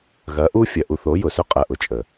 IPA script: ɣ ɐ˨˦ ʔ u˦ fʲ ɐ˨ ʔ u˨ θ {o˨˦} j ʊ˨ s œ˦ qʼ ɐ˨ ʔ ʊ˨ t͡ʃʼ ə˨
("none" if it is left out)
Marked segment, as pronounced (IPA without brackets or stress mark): o˨˦